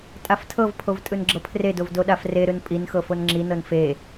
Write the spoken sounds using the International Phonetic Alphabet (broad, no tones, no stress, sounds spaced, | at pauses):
tʼ a f tʰ ɤ v pʰ o v tʼ ɯ n ɡ͡ǁ ɤ pʰ r e d o v d o ɗ a f r e ɾ ɯ n pʼ i n x ɤ f o n ŋ͡ǁ i n ɤ n f e